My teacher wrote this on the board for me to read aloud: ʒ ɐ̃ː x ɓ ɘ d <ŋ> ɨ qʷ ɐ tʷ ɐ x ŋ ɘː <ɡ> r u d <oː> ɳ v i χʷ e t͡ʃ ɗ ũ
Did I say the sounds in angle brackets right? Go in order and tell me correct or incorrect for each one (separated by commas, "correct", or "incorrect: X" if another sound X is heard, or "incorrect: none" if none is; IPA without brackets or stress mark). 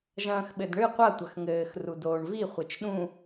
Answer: incorrect: ɳ, incorrect: x, correct